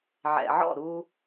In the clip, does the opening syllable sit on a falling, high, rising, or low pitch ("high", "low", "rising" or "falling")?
low